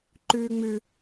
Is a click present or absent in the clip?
present